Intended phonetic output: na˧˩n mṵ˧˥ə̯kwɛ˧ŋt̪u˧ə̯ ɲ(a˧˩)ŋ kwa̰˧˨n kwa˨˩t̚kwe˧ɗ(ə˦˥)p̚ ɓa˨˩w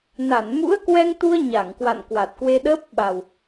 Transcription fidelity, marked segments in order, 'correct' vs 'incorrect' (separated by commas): correct, incorrect